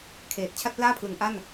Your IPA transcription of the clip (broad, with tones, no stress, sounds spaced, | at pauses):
kʰ eː˨˩ t̚ t͡ɕʰ a˥˩ t̚ p l aː˥˩ pʰ l ɯ˩˦ ŋ ʔ a˥˩ n